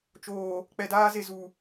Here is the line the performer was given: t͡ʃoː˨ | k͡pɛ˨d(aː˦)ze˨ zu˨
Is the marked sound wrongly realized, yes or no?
no